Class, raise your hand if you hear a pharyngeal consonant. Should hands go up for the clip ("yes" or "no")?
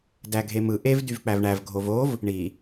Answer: no